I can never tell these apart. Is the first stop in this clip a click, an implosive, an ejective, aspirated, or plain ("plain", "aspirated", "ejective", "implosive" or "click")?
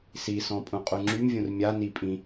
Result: ejective